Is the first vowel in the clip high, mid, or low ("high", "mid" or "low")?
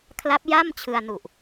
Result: low